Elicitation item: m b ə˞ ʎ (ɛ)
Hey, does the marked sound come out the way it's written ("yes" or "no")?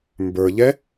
yes